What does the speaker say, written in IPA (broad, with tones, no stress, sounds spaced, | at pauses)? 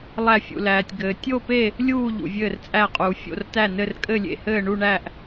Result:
lˠ æ˥˧ fʲ ṵ˧ l æː˧ tʲ ɡ ɘː˧ tʲ o˥˧ p e˥˧ | lʲ uː˥˧ ʎ ṵ˧ vʲ ɘː˥˧ r t͡sʼ æ˥˧ qʼ uː˧ fʲ o̰˥˧ r t æ˥˧ n ɘ˥˧ r kʼ ɘ˥˧ lʲ ḛ˥˧ h ɘː˥˧ ɳ u˥˧ ɳ æ˥˧ ʔ